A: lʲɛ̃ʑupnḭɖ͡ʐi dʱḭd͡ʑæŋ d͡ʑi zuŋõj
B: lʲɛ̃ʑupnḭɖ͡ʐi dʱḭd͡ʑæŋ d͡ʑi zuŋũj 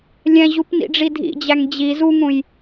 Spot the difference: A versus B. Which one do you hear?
B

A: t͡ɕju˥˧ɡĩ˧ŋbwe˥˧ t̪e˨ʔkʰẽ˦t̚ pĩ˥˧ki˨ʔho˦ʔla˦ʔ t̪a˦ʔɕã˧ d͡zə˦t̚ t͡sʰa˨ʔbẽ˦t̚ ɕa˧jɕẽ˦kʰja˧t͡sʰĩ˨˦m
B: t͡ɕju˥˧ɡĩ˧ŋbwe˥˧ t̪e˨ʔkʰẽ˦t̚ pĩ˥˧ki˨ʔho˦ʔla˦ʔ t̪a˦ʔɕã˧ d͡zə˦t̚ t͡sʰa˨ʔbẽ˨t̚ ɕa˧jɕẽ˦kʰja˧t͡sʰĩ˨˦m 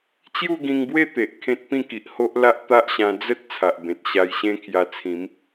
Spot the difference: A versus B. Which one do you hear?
B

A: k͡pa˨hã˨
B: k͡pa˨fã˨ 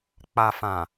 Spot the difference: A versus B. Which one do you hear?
B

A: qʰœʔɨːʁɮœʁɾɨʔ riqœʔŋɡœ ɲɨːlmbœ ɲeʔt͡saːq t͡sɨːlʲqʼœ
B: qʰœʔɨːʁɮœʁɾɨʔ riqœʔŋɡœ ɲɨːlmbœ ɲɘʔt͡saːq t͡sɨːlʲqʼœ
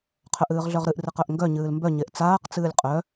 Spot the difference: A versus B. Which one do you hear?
A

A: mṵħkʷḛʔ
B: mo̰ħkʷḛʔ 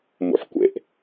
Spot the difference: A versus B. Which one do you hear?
A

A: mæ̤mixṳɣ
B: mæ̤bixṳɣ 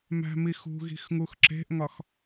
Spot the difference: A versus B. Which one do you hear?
A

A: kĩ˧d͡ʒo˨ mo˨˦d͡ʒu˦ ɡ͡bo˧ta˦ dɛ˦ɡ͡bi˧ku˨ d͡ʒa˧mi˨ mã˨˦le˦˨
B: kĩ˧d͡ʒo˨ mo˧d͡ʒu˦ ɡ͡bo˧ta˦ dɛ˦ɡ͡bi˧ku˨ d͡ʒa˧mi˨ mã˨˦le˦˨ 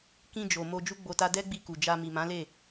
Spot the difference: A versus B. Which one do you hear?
B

